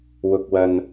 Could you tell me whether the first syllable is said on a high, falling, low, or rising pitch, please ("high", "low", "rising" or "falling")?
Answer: low